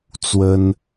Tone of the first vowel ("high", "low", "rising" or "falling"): high